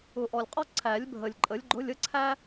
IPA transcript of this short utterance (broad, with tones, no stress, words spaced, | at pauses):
ʊ˨˩ʔɔ˨˩lʲqʼɔ˥ ǀʰæ˨˩˦lʲbʱə˨˩lʲ ǃʼə˩˥lʲɡ͡ǃʊ˧˥˧lʲ ə˥ǀʰæ˥